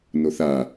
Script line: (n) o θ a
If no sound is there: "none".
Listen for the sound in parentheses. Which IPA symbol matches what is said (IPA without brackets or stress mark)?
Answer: n